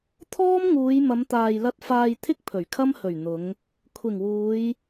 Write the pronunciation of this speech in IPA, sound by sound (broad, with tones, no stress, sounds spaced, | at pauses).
t̪ʰ ɔː˥ m ŋ uː˨˧ j m ɐ˨˧ m t̪ aː˨ j l ɐ˧ t̚ f aː˧ j t̪ʰ ɪ˥ k̚ pʰ ɵ˨˩ ɥ kʰ ɐ˥ m h ɵ˨˩ ɥ n̪ ʊ˨˧ ŋ | kʷʰ ɪ˨˩ ŋ w uː˨˧ j